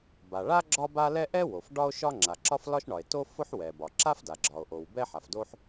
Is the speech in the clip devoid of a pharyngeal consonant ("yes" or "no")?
no